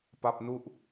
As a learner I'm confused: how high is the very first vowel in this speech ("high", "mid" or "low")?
low